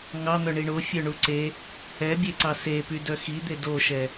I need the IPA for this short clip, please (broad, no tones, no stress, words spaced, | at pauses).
ŋɑn̪œ ɳiɳo fʲœɳuǀe | ɛbʲeǀɑ sepy dœxid̪e doʃɛ